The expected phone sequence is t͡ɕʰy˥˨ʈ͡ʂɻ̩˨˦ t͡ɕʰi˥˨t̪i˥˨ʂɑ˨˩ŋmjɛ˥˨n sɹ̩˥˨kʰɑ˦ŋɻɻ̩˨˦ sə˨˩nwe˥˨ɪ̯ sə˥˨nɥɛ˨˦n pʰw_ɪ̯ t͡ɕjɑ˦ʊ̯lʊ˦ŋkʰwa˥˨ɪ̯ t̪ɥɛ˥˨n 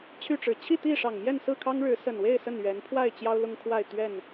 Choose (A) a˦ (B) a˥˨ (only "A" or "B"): B